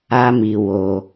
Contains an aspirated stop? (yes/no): no